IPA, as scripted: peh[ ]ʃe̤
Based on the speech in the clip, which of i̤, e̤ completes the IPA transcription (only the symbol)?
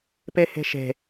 e̤